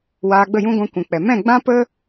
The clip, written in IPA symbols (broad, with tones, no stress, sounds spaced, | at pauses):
w aː˧ ɡ͡b ə˦˨ j ũ˦ ɡʷ ã˧ kʷ ũ˨ k͡p ɛ˨ m ɛ̃˦˨ ɡ͡b ã˦ p ə˦